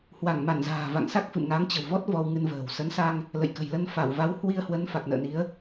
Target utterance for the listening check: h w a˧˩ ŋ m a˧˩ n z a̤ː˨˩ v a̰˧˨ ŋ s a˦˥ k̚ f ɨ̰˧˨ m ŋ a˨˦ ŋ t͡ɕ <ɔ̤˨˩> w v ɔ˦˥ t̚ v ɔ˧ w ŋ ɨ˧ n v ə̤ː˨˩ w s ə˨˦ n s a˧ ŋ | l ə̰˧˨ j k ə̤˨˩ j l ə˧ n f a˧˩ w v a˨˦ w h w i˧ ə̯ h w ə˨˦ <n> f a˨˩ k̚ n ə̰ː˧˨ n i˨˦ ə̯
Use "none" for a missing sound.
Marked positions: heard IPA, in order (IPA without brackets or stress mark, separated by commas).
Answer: ə̤˨˩, n